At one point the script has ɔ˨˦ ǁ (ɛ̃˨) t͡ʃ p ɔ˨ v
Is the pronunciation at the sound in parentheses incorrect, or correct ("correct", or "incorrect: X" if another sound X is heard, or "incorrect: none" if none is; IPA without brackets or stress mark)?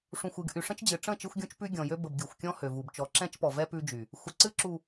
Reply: incorrect: ɛ̃˦